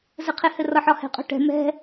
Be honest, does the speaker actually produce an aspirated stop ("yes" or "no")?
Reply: yes